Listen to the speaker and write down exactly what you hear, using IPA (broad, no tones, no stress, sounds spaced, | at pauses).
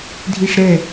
dʱ i ʂ ɾ ɛ